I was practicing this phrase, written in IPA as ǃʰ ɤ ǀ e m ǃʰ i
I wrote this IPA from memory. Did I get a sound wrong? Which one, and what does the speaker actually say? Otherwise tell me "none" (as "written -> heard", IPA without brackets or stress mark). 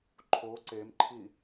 ɤ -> o